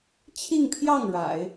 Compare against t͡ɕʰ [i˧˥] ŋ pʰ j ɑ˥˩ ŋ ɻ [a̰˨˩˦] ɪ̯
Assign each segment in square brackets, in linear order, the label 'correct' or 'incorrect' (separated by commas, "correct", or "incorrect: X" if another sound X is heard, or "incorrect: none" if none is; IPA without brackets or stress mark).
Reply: incorrect: i˥˧, correct